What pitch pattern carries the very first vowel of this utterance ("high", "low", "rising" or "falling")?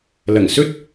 low